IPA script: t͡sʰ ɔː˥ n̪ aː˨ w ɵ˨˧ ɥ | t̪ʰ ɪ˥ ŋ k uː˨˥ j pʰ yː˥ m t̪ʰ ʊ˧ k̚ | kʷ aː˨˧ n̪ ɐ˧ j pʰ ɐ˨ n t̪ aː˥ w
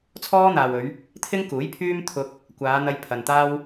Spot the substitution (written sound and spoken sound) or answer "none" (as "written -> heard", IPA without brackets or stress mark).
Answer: none